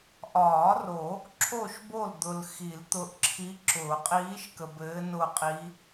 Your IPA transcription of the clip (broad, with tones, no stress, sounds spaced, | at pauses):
ʔ ɒː˨˩˦ r o˨˩˦ | ǁʰ o˦˨ ʃ b o˦˨ l d̪ ʊ˨ l x i˨˩˦ l t̪ ʊ˧˥ ʔ ǁʰ i˧˥ ǁ ʊː˨˩˦ qʼ iː˧˥ ʃ k ə˨ b ɘː˧˥ n ʊ˦˨ qʼ i˧˥